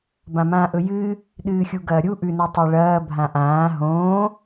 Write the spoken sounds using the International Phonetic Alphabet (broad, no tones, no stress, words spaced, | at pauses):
bãmãːʔɵjɨː | ɗɨːxʲuɡɐːɾʲu ʔʉnutˤeɭɐː bʱãʔãː ɦõː